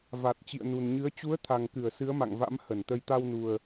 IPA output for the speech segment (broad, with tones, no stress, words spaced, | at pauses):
va˨˩t̚ t͡ɕḭ˧˨ə̯nu˨˩nɲɨ˨˦ə̯ t͡ɕu˨˦ə̯t̪ʰa˨˩ŋkɨ˧˩ə̯ sɨ˨˦ə̯ma̰˧˨ŋva̰˧˥m hə˧˩nt̪ə˧j t̪a˧wnu˨˩ə̯